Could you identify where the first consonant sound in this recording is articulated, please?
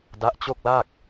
alveolar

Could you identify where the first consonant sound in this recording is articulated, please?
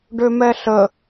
retroflex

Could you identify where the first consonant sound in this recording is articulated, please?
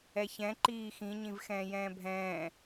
palatal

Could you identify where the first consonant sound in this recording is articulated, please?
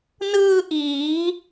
alveolar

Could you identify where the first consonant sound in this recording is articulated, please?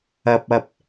labial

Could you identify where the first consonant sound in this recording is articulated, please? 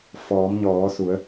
labial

